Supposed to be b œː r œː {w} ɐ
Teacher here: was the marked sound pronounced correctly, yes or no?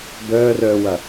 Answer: yes